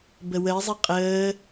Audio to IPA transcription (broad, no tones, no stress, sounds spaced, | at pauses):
b ə w ə ɪ̯ zˤ i qʼ əː